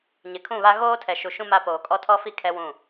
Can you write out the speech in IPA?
ɲ ɪ˨ kʰ ũ˦˨ β a˦ ɣ oː˦ tʰ ɛ˨ ʃ u˨ ʃ ũ˦ m a˦ p oː˨ kʼ ɔ˦ tʰ ɔ˦ f i˦ kʰ ɛ˦ w ũ˦˨

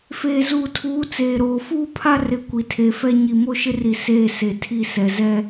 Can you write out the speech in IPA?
f eː˨ z uː˨ tʰ uː˨˦ t͡s eː˨ ɾ oː˨ f uː˦ pʰ a˦ r ɪ˨˦ kʷ i˨ tʰ e˨˦ f ɛ˦ ɲ i˨ m o˦ ʃ ɪ˦ r i˨ s eː˦˨ s e˨ tʰ i˦˨ s ɛ˨ z ɛ˦

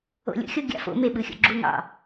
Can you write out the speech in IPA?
o̰ lʲ ṵ xʲ o ɡʲ ɑ̰ f o̰ m e ɓ ɯ xʲ o̰ ɡ͡ǁ u ŋ ɑ̰

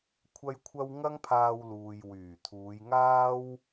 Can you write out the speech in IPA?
kʷʰ ɐ˥ j kʷʰ ɐ˥ w ŋ ɐ˥ ŋ pʰ aː˧ w l uː˨ j w yː˨˩ t̪ʰ uː˨˧ j ŋ aː˥ w

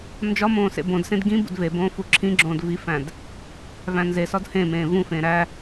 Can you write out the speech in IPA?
n d͡ʒ ɒ m õː s ḛ b õ d s ẽ d ɡ ĩ b ṵ d v e b õː f u ǁʰ ĩ ɡ͡ǁ õː d v i f æ̃ d | v æ̃ n z e s ɒ d h ẽ m ẽː v ũ f ẽː ɾ æ

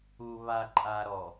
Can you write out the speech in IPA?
u β a ǃʼ a ɾ ɔ

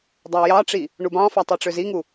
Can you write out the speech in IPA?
dˤ ɑ j ɑ ʈ͡ʂ i | ɳ u b ɑ̃ f ɑ tˤ i ʈ͡ʂ ø z i ŋ u

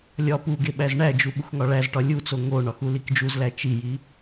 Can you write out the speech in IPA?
lʲ ɒ p u ɡ e ɓ æ z ɳ æ d͡ʒ u ɓ u x ŋ ɒ ɭ æ z ʈ ɒ lʲ u t͡s o ŋ o ɳ ɒ x u l i k d͡ʒ u z l æ t͡ʃ i j i

